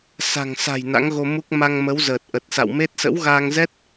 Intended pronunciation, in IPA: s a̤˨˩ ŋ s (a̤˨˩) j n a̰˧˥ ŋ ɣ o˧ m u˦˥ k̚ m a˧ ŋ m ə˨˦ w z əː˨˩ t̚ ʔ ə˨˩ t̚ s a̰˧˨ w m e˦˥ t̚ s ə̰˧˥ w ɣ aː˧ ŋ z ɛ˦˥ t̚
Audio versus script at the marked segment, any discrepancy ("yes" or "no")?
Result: no